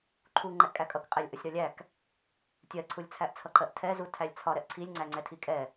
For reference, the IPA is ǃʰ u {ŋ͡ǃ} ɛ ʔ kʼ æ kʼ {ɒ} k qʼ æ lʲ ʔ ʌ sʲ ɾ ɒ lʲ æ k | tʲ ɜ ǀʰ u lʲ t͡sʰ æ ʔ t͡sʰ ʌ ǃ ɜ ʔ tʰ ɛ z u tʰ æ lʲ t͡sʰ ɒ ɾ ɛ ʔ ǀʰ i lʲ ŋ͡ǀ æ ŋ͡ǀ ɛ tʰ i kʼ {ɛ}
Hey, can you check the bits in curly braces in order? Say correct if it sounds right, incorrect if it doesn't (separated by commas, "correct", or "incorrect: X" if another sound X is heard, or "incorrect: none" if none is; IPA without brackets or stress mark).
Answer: correct, incorrect: ʌ, correct